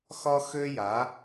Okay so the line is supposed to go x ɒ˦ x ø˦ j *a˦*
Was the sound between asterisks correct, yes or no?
no